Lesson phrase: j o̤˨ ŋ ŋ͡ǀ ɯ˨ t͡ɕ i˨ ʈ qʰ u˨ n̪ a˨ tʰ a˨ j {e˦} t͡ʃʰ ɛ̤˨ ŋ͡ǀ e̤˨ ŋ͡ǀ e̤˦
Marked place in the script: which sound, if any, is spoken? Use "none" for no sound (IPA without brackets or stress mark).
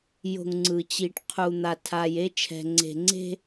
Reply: e˦